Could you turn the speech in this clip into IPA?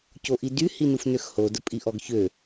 c o ʔ i d y h i n u f n ø x h o d ə pʼ i ʔ ɔ ɡ ç ø

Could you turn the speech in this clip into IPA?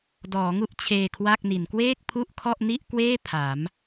d ɔː˩˦ ŋ u˥˩ ʔ t͡ɕʰ eː˧ kʰ w a˥˩ k̚ n i˩˦ n k w eː˥˩ k̚ pʰ u˥˩ ʔ kʰ ɔ˥˩ ʔ n i˥˩ ʔ k w eː˥˩ pʰ a˩˦ m

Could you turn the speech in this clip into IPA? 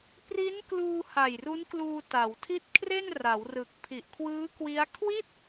p r i˦˥ n k l uː˧ h a˨˩ j r u˦˥ n k l uː˧ t a˩˦ w tʰ i˥˩ t̚ kʰ r e˥˩ n r a˩˦ w r ɯ˨˩ k̚ pʰ i˨˩ ʔ kʰ w ɯː˦˥ k w i˦˥ a̯ kʰ w i˥˩ t̚

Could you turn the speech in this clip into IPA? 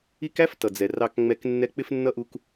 i˦ k æ˥ f t ʌ˩ d͡z ɛ˩ r ɑ˨ k ŋ͡m ɛ˨ k nː ɛ˦ k͡p ɪ˥ f nː ʌ˥ ʔ u˦ k

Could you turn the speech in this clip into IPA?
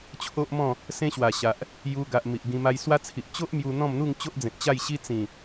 t͡ɕʰ o˦ ʔ m ɔ̃˥˧ | s ẽ˦ ɕ w a˨˩ ɕ a˨ ʔ | j u˧ ɡ a˨ ʔ m i˨ ʔ ɡ ĩ˧ m a˧ j s w a˦ t͡sʰ i˨ ʔ t͡ɕ o˦ ʔ m j u˧ n̪ ɔ̃˥˧ m n̪ u˥˧ ŋ t͡ɕ o˦ ʔ d͡z ẽ˨ t̚ t͡ɕ a˥˧ j ɕ i˦ t͡s ĩ˨˩

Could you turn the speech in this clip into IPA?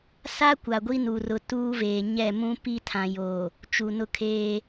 s a˦ kʷ a˨ ɡʷ i˦ n u˨ r ʊ˨ t uː˦ v eː˨ ɲ ɛ˦˨ m ũ˦ p i˦ tʰ ã˨ j o˨ | t͡ʃ u˨ n ʊ˦ kʰ eː˦

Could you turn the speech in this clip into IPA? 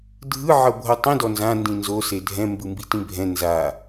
dʱ ɯ ʕ ɤ bʱ ɤ tˤ ĩ d ɔ n z ã n d ĩ n z o s e dʱ ɛ̃ m b ɯ m b i t ĩ bʱ ɛ̃ n z a

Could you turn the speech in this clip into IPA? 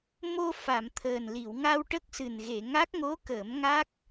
m o˧ f a˨˩˨ m t̪ʰ əː˨˩ n l i˨˩˨ w ŋ a˧ w ʈ ə˦˥ k̚ s ɨ˨˩ n ɣ e˨˩˨ ŋ a˦˥ k̚ ŋ o˧˥ k əː˨˩˦ m ŋ a˦˥ k̚

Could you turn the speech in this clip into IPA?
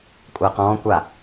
kʷʼ a q ɔ̃ː kʷ a

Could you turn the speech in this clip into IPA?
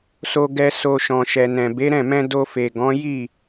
s o˧ ɡ ɛ˧ s o˧ ʃ ɔ̃˨ ʃ ɛ˨ n ɛ̃˨ b e˨˦ ɾ ɛ̃˦˨ m ɛ̃˧ d o˧ f e˨ ɡ ɔ̃˨˦ j i˦˨

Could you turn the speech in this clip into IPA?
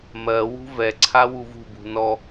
m ɜ w ṳ v ɛ ǀʰ a w u v ṳ b ṳ n ɔ

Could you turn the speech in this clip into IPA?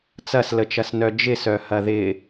t͡s ɐ s l ə t͡ʃ ɐ s n œ d͡ʒ ɪ s œ h ɐ ð ɪ

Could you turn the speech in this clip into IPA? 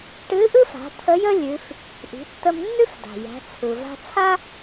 ʈ ɨ˧˥ ʔ ɯ˥ f a̤˩˧ t̪ʰ ə˧˥ j ə˥ lʲ ʉ˩˧ f | ʔ i̤˩˧ tː ə˧ m nː ʉ˥ f d a̤˩ j æ̤˩˧ t͡sʰ ɯ˩ v a̤˧ t͡sʰ a˥

